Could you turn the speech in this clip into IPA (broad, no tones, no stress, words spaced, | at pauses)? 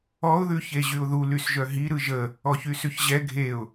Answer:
ɔʊ̯ðʉ çeʑyʊ̯ðu lysʒœɦi ɾɯʒə | ɔçysʉçʑɛ ɡʱeʊ̯